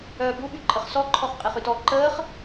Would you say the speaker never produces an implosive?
no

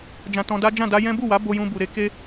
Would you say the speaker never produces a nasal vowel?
no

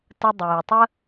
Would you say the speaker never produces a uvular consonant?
yes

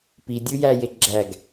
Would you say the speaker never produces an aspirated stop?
yes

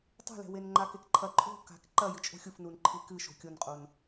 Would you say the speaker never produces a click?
no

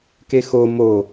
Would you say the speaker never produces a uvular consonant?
yes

